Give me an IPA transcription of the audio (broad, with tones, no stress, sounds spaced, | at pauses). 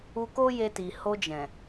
u˧ k o˦ j e˧ t i˨ h o˧ d͡ʒ ɛ̃˨